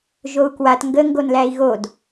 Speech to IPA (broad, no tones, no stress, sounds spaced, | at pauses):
ʒ o u̯ k w a t ŋ ɡ ə ŋ ɡ o n l æ i̯ ɣ o d